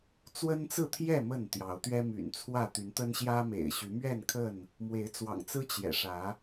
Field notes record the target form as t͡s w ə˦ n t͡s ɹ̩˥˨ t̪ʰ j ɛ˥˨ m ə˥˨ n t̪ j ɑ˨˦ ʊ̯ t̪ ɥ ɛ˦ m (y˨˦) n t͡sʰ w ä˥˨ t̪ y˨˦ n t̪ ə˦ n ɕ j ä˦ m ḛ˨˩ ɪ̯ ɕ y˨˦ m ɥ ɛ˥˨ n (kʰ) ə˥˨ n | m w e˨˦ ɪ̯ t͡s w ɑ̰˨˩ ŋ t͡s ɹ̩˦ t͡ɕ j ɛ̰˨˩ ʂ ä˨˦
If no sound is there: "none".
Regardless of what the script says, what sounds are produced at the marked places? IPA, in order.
y̰˨˩, kʰ

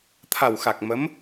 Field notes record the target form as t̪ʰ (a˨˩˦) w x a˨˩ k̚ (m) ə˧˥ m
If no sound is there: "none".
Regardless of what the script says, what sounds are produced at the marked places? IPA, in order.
a˨˩, m

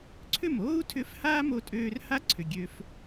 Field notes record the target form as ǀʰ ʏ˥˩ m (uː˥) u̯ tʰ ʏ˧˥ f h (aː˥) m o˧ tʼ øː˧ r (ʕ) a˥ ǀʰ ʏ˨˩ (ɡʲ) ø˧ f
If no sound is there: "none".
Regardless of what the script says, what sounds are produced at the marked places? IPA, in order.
oː˥, aː˥, h, ɡʲ

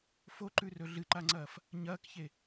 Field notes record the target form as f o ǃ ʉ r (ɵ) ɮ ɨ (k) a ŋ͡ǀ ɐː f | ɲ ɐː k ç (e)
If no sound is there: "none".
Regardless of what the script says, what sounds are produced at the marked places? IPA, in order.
ɵ, ǃ, e

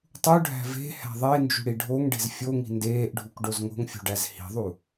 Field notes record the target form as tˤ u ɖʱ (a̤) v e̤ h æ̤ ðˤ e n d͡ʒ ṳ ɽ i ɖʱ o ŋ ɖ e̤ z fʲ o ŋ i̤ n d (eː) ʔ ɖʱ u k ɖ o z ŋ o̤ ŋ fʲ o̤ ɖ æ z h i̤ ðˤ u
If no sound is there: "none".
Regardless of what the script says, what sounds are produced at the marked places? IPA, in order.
æ̤, eː

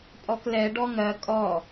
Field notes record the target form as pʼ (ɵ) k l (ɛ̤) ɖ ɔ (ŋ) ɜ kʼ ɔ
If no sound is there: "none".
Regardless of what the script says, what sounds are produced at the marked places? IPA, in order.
ɔ, ɛ, ŋ

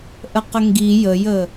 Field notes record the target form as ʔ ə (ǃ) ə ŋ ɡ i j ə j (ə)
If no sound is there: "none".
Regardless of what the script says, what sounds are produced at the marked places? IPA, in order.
q, ə

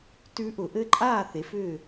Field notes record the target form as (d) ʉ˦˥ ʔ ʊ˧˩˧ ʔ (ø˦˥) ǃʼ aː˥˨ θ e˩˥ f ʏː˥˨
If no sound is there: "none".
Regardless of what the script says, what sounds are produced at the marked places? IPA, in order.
t, ɘ˦˥

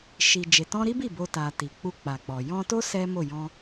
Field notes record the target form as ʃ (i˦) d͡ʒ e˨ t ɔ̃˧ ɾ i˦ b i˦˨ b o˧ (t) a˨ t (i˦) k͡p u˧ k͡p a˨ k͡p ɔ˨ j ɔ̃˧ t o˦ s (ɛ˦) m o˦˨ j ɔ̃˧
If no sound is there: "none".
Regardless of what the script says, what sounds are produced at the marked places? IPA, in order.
i˨, t, i˨, ɛ˦

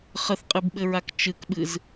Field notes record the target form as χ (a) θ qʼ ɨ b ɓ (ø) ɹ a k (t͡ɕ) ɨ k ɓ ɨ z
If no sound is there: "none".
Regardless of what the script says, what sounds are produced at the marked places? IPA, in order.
ə, ɘ, t͡ʃ

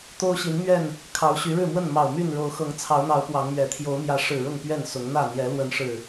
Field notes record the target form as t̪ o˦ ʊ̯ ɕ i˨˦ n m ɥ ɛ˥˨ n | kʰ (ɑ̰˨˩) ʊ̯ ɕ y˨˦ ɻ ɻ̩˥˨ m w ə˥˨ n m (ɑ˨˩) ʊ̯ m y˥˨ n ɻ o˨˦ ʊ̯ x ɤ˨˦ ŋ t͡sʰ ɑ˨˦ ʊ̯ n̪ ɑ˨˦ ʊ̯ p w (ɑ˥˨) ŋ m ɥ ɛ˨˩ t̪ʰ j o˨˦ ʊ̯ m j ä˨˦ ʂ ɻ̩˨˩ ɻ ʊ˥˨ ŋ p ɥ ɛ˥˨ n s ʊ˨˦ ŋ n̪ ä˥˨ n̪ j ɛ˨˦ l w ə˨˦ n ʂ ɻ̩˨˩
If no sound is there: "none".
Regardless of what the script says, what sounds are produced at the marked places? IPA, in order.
ɑ˨˦, ɑ˨˩, ɑ˨˦

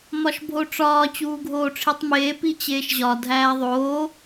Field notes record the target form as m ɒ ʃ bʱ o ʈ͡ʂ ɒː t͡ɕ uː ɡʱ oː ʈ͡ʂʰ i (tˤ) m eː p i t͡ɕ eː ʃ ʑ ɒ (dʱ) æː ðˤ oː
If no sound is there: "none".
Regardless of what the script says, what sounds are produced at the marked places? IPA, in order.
tˤ, dʱ

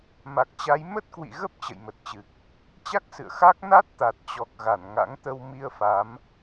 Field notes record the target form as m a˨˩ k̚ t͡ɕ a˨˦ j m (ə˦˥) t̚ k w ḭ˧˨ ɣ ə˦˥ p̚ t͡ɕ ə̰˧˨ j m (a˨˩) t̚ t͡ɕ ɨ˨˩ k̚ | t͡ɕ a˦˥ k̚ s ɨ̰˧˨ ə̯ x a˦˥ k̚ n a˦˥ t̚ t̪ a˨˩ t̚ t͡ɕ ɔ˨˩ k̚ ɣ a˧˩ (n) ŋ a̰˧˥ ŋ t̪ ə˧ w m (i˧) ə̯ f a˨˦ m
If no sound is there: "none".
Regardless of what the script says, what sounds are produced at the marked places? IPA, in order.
ə˦˥, ə˨˩, n, i˧

